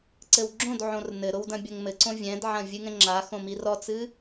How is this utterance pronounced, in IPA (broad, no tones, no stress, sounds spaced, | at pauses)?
ǀ ɘ w ɡ͡ǁ õ d ʕ õ r n ɘ ɾ o w d ɐ̃ bʲ ɐ ŋ m ɘ ǀ õ vʲ ɛ̃ d ʕ ɐ̃ vʲ ɨ ŋ ɛ̃ ŋ͡ǁ a x õ m i r ɔ t͡s ɨ